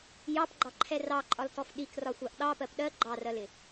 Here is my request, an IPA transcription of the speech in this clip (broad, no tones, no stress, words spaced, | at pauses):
jɑpɡ͡ǃɑǃʰɛ rɑǃʼɒltɔf ɗikrɒxʷɑʔ ɗɑpɜp ɗɜ ɡ͡ǃɑrɜlɪ